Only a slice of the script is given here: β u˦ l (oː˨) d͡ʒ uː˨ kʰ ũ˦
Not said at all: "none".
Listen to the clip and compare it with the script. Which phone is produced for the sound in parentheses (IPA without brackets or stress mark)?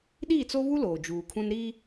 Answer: oː˨